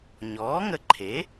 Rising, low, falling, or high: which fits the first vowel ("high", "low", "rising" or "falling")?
rising